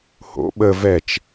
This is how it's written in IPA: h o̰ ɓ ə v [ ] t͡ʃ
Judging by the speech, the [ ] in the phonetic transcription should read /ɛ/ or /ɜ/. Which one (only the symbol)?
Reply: ɛ